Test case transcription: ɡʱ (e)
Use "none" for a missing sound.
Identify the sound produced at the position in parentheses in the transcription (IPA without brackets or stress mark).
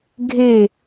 e